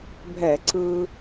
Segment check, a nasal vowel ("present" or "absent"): absent